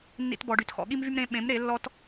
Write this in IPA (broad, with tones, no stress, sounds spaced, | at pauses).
nː ḭ˧ t b ɔ˨ ɖ y˨ t x ɔ̰˨ ɠ i˦ m v y˦ m ɾ ẽ˧ ɓ ẽ˨˦ m ɾ e˨˦ lː ɔ˦ t